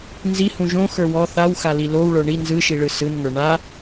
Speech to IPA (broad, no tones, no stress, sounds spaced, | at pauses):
n z i h ũ ʒ õ x ə˞ w ɔ θ a w x a l i l o w ɭ ə˞ ɳ i n z ɯ ʃ i ɭ ɯ s ɯ n ŋ ə˞ ɳ a